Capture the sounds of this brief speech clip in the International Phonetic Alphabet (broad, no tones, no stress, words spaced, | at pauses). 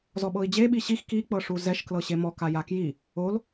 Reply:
zɔɓɤi̯d͡ʑe ɓiɕix ki k͡pɤʂuzɛʃ klɤɕemɔk ajakji | ol